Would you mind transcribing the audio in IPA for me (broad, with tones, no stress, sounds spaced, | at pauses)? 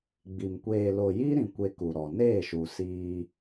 ɡ͡b i˨ m kʷ eː˨ l o˨ j i˦ ɾ ĩ˨ kʷ e˦ k u˨ ɾ ɔ˨ n eː˦˨ ʃ u˨ s iː˦